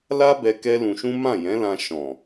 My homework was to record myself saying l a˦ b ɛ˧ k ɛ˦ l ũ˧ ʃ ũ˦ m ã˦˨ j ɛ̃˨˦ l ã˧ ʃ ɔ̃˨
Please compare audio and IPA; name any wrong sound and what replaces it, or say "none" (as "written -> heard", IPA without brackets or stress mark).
none